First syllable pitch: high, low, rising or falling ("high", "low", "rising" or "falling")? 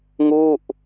falling